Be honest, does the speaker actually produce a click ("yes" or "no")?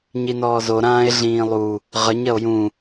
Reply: no